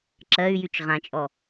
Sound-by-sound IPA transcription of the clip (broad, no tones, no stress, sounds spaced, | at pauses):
ǁ ɜ y̯ j y t͡ʃ ʁ ã t͡ʃʼ ɔ